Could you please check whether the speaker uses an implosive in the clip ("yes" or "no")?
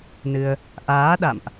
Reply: yes